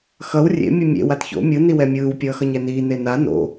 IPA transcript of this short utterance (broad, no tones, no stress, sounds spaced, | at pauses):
x ʌ w rʲ ḛ mʲ u mʲ ḛ w a t ç o̰ mʲ ɯ n i w ɛ mʲ ɯː w pʲ ʌː x ʌ ɲ ɛ n iː n e n a n o̰